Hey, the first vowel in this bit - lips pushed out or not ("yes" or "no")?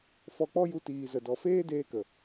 yes